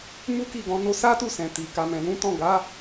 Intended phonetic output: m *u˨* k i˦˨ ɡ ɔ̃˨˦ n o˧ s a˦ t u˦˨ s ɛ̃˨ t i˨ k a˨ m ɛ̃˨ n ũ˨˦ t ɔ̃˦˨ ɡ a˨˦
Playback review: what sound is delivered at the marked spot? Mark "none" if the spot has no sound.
u˦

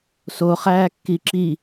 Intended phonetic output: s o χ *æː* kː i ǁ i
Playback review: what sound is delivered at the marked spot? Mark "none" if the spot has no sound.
æː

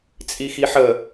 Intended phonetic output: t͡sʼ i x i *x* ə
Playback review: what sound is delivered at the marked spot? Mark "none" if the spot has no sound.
ħ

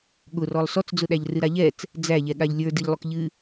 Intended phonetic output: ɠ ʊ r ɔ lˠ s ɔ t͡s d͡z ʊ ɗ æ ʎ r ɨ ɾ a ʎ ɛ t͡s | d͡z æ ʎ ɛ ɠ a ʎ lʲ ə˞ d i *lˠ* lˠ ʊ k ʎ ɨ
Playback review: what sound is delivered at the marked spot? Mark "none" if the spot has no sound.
ʎ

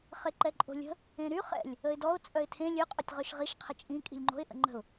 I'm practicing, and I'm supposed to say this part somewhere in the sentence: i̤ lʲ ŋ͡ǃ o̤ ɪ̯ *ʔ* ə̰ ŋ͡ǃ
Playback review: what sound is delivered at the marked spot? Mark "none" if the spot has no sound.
ʔ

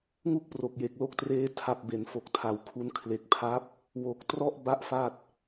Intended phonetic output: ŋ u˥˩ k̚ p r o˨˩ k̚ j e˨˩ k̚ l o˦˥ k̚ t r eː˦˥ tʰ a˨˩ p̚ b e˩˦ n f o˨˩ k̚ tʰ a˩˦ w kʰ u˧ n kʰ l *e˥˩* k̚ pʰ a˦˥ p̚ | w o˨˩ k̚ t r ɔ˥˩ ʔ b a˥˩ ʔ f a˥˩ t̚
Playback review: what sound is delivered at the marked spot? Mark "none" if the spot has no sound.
e˨˩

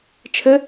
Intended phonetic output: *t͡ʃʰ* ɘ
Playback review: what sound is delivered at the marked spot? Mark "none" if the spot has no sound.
t͡ʃʰ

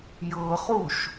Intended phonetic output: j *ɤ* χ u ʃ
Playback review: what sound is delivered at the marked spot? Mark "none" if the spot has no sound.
ɤ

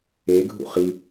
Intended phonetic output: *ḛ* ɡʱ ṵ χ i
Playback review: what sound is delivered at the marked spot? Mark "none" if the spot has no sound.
e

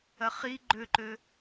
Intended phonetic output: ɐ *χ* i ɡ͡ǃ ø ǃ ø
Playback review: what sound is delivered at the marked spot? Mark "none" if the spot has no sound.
χ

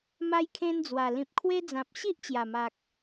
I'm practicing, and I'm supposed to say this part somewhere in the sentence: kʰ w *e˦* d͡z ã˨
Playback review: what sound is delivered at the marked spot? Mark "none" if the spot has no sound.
e˦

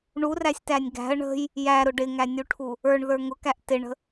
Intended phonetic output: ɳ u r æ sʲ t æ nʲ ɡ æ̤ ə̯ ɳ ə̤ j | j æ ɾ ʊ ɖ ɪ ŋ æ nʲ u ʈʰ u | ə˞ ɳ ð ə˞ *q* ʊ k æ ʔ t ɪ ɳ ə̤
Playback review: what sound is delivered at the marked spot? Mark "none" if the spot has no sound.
ŋ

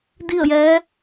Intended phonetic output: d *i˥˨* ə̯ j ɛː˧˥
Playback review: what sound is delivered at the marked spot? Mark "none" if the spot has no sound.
i˥˨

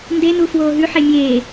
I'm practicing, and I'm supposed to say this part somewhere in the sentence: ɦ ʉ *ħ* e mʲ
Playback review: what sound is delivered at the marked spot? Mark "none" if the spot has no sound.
ħ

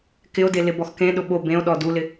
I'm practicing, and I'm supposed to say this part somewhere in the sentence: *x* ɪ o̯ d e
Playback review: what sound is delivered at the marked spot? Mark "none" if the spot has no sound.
k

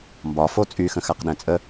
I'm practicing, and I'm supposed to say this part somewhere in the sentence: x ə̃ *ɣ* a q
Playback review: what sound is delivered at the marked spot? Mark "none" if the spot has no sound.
x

